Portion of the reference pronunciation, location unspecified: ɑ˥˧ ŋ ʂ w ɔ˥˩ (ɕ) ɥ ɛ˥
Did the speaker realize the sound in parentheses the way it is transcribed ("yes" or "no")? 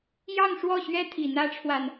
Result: yes